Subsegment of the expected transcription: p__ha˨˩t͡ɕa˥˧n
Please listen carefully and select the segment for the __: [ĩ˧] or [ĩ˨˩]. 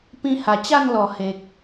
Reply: ĩ˧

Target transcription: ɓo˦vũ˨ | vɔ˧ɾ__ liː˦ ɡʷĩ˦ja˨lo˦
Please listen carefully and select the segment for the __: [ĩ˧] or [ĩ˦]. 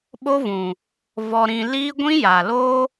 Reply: ĩ˧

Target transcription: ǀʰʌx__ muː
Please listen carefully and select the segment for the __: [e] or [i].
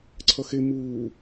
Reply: e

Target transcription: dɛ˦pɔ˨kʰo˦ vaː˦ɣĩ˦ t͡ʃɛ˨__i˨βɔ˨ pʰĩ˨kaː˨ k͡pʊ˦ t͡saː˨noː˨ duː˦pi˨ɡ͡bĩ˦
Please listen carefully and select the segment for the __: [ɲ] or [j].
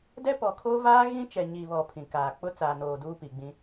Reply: ɲ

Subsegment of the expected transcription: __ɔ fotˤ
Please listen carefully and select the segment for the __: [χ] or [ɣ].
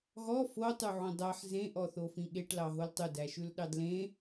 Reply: ɣ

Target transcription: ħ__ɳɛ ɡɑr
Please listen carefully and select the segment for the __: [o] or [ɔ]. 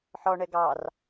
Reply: ɔ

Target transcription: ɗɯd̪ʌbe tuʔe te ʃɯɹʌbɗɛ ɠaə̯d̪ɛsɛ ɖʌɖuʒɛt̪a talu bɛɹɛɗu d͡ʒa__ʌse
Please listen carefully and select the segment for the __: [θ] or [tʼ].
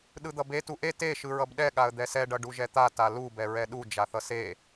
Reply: θ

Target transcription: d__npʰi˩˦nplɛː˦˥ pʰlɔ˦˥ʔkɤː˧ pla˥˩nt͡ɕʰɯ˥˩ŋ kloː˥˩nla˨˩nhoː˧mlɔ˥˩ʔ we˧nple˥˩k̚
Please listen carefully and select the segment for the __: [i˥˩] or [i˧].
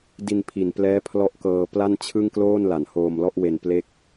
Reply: i˧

